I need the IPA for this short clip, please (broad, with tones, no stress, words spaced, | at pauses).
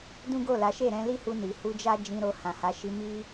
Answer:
dũ˦ɡo˦˨la˨˦ ʃe˦˨ɾɛ̃˧li˦hu˧ ni˨hu˧d͡ʒa˦ d͡ʒĩ˧ɾo˧ hã˨ha˨˦ʃi˧ mi˧